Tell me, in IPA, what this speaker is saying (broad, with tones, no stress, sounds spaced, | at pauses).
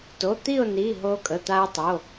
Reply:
t o˩˧˩ t̪ i˥˨ ʊ̯ n i˩˧˩ ɦ o˧ kʼ ə˩˧˩ t̪ a˧ ɪ̯ tˤ o˩˧˩